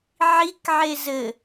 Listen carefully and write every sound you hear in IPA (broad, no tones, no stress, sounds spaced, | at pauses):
ʕ i k ʕ e z ɘ